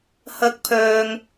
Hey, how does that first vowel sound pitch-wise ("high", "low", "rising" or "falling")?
high